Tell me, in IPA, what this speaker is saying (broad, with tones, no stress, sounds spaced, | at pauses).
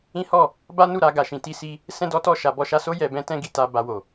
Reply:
ĩ˦ h ɔ˦˨ | b a˦ n u˦˨ ɾ a˧ ɡ a˨ ʃ ĩ˧ t i˦ s i˦ | s ɛ̃˦ d ɔ˦ t ɔ˦˨ ʃ a˨ b ɔ˧ ʃ a˧ s o˦ j ɛ˧ b ɛ̃˦ t ɛ̃˦ ɡ i˧ t a˧ b a˧ w o˨